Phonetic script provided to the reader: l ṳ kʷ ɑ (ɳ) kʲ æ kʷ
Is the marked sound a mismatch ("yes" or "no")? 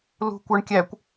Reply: no